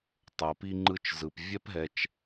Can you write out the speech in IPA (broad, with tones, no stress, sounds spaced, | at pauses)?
tˤ ɤ˩ p i˥ ŋ͡ǃ ɯ˦ t͡ʃ z ɯ˩ p vʲ ɛ˥ p ɦ ɛ˨ t͡ʃ